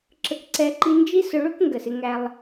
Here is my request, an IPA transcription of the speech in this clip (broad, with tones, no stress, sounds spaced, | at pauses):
ǁ ə˧ k ǀ ɛ˧ ǃ i˧ n d͡ʒ i˦ s ʊ˧ ɭ ʊ˦ k ŋ ɡ ə˨ s ɪ˧ ŋ æ˧ lˠ